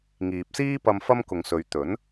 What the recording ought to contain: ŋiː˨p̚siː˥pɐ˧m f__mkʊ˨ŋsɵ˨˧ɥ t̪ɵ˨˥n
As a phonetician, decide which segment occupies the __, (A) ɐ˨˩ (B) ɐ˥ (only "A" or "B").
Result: B